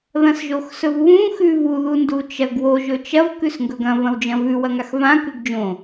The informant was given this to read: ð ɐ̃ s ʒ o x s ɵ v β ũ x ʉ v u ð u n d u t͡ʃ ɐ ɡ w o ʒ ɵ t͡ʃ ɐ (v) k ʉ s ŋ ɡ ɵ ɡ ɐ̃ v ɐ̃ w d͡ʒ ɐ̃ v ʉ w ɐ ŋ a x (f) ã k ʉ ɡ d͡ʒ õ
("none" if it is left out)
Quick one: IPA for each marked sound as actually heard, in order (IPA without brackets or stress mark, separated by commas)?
v, v